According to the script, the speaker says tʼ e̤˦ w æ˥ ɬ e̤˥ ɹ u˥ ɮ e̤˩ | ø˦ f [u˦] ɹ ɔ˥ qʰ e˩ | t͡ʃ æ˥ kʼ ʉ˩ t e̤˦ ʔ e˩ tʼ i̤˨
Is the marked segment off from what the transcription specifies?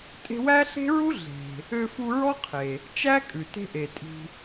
no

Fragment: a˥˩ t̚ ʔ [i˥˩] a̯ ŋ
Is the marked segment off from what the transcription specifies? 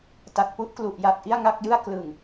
no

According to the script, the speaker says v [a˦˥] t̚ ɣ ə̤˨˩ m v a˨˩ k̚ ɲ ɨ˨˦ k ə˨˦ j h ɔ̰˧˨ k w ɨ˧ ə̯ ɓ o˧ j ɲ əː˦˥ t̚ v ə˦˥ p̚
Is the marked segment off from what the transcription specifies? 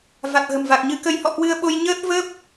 yes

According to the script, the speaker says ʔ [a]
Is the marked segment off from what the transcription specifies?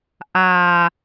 no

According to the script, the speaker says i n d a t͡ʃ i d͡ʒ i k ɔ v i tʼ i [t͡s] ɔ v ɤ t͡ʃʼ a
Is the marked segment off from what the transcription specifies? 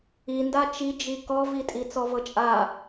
no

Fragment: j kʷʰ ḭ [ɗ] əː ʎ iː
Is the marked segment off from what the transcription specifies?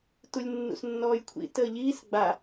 yes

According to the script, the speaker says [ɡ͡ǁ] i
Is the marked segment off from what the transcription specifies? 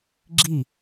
no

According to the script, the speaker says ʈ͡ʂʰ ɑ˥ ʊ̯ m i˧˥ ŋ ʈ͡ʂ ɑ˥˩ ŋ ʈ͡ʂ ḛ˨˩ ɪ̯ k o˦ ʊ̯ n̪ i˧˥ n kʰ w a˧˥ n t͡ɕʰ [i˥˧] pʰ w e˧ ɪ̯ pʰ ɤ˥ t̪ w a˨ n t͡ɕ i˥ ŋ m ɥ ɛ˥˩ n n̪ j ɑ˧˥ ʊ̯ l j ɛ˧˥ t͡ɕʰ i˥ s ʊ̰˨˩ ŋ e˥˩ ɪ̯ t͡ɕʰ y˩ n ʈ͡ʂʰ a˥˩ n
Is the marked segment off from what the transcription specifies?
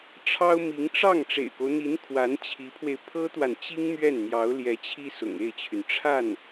yes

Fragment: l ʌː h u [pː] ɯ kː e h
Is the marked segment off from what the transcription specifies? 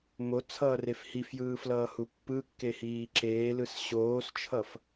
no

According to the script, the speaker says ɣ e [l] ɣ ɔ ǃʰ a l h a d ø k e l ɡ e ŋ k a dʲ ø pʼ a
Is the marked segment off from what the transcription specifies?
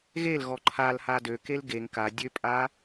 no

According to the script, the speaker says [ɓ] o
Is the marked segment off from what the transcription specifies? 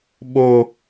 no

